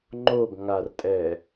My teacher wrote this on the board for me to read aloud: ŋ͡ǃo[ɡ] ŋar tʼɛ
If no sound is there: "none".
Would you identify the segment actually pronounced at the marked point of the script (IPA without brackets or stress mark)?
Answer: ɡ